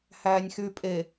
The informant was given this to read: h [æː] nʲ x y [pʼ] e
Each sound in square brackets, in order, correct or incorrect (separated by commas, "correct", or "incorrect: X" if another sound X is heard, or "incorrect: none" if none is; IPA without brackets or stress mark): correct, correct